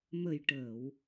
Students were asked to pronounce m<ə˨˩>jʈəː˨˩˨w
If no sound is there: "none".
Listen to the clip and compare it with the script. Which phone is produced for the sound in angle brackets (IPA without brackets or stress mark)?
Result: ə˨˩